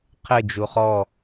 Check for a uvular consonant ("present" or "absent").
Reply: present